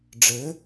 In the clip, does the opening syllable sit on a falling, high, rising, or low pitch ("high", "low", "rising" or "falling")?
rising